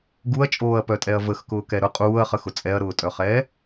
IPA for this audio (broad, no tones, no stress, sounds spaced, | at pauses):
ɡ u ɐ̯ t͡ʃʼ oː ɐ̯ p œ tʼ ɛ ɐ̯ v ə x k ʊː k ɛ ɾ ʊ qʼ uː ɐ̯ χ ə x ʊ t͡sʼ ɛ ɐ̯ ɾ ʊː tʼ œ χ ɛː